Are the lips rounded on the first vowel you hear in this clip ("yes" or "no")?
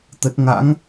no